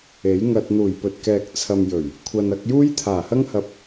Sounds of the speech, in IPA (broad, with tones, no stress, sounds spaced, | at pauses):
e˨˥ j ŋ ɐ˧ t̚ n̪ uː˨˩ j p ɵ˨ t̚ k ɛː˨ k̚ t͡sʰ ɐ˨ m j ɵ˨˩ ɥ | kʷʰ ɐ˨ n ɐ˧ k̚ j uː˥ j t̪ʰ aː˨˩ h ɐ˥ ŋ h ɐ˧ p̚